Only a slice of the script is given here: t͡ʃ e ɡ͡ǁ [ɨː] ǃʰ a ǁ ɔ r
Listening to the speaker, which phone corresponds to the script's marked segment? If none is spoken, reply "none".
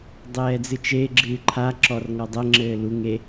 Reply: ɨː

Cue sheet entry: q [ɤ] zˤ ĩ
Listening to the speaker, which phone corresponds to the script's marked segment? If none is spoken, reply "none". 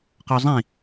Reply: ɔ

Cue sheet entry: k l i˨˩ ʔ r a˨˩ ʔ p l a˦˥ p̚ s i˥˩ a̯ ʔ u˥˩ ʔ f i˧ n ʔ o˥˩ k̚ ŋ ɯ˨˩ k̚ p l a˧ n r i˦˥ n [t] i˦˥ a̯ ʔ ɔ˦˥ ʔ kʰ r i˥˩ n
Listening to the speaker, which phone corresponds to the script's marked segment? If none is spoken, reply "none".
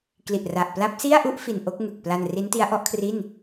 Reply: t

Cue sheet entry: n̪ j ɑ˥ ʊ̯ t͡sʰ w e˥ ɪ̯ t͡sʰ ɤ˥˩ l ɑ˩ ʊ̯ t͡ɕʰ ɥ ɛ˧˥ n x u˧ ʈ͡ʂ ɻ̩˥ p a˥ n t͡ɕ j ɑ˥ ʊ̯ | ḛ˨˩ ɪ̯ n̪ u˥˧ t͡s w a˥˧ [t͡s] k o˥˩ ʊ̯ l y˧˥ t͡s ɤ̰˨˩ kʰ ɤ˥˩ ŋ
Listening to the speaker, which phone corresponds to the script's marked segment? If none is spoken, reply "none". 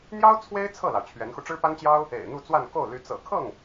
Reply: n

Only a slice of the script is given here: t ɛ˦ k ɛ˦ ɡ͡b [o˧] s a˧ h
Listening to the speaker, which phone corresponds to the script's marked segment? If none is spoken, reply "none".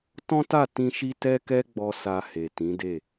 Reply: ɔ˧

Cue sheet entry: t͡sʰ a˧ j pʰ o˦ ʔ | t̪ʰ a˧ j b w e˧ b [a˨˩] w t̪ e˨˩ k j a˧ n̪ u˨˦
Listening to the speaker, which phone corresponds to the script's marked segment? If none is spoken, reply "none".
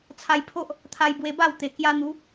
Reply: a˥˧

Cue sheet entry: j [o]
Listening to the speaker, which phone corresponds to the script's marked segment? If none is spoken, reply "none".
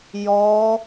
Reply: ɔ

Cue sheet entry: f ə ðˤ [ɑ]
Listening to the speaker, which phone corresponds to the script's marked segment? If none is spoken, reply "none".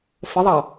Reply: ɑ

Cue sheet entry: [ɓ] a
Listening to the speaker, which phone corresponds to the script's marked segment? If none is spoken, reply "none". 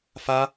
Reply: f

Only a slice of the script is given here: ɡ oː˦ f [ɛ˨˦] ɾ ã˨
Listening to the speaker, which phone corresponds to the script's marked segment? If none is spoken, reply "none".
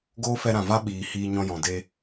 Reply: ɛ˧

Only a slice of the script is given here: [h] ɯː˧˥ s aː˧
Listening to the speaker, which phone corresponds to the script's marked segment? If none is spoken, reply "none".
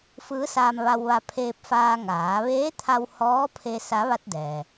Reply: f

